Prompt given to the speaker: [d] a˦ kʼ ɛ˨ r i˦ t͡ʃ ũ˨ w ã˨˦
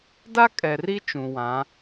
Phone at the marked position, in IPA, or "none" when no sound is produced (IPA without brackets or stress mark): d